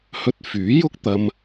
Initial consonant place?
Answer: glottal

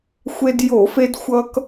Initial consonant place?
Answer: velar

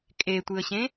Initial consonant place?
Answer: velar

